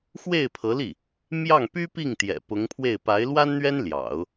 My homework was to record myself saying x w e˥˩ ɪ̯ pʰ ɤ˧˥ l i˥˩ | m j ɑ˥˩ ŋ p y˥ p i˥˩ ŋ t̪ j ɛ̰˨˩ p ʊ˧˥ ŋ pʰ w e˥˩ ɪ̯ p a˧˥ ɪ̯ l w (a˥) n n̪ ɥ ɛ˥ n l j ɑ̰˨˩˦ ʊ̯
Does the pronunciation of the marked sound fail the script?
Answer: no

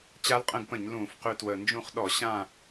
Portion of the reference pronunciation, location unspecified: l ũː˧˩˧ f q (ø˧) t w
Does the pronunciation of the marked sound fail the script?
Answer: no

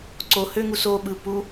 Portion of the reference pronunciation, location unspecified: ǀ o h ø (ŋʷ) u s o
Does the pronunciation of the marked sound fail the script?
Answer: yes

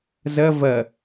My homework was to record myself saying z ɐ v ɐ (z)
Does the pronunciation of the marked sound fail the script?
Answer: yes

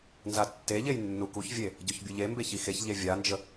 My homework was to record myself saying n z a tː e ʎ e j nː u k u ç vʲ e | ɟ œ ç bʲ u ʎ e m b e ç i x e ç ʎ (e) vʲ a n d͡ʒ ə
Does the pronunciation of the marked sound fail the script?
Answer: no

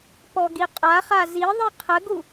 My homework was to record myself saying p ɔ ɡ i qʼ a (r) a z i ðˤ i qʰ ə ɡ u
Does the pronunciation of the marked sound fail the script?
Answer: yes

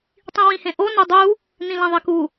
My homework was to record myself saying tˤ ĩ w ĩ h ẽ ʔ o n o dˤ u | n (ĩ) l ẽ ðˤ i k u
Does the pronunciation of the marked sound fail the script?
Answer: no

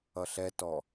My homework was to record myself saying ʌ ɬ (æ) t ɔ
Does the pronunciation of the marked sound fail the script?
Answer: yes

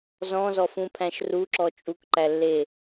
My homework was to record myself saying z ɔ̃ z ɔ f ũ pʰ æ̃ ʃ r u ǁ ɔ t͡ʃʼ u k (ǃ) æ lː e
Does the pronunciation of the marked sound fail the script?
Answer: no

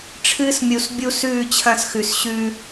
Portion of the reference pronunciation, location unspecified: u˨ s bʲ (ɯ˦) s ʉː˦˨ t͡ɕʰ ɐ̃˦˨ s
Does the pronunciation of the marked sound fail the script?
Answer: yes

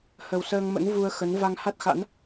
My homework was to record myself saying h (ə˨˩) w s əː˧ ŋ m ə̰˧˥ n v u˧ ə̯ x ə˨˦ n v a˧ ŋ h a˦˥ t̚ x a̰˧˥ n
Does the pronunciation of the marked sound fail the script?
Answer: no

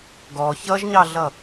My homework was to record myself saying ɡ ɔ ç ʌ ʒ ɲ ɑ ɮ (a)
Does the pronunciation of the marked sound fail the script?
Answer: yes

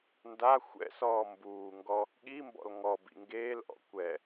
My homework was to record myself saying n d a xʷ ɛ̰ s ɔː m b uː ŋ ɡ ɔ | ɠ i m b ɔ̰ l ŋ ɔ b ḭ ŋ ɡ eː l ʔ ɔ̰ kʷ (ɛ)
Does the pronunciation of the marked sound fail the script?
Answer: no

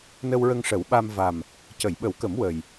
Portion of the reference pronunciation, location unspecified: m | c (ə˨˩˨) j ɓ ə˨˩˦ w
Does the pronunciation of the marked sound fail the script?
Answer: no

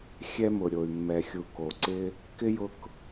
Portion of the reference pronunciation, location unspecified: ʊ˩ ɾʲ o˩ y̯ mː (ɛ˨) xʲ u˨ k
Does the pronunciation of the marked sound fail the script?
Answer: no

